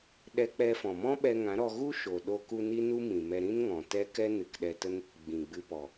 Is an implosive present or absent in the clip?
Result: present